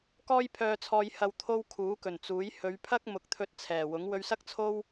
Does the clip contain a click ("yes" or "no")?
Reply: no